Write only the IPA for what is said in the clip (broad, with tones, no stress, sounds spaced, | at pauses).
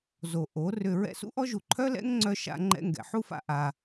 z o˨ ʔ o˨˦ r ʏ˧ ɹ ɛ̰˧ s ṵ˦ ʔ ɔ˦ ʒ u˨ ǃʰ œ˦ l ɛ̰˦ ŋ ŋ͡ǀ œ˧ ʃ a̰˧ ŋ͡ǃ ɛ̰˧ ŋ ɡ ɛ̰˨ ħ u˦ f a̰˧ ʔ a˧